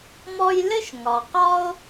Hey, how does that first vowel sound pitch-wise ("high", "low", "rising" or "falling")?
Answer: high